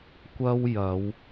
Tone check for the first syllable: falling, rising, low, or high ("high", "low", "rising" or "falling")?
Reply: high